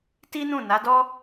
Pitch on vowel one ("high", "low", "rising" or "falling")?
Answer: high